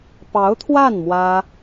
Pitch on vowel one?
rising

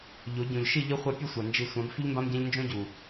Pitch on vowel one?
rising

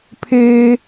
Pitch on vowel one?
high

